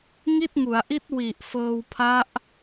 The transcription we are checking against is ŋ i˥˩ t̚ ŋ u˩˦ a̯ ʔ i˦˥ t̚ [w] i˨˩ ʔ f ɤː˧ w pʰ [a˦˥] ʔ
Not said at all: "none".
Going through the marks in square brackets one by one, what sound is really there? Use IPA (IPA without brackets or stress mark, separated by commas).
w, a˦˥